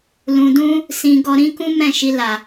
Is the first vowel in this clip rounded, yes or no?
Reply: yes